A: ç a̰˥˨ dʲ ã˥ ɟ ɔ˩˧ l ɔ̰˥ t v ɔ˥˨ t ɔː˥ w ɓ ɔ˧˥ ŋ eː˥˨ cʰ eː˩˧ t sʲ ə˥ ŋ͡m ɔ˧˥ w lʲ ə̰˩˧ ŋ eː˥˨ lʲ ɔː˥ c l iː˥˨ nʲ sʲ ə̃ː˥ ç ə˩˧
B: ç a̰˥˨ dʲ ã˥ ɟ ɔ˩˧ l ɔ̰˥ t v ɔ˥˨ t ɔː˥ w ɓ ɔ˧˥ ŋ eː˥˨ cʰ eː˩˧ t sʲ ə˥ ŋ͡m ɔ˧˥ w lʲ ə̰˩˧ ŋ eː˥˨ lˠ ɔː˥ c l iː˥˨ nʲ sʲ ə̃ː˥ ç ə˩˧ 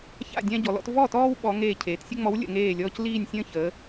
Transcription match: A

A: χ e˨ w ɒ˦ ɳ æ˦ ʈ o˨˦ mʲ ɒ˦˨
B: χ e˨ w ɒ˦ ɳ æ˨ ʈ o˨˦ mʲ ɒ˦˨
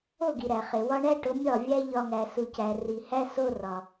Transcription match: A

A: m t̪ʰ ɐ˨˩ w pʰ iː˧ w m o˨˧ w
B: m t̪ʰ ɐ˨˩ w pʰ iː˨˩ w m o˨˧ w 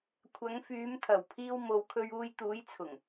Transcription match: A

